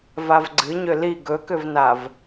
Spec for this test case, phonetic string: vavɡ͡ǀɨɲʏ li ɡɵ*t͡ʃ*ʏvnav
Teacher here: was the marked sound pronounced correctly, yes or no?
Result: no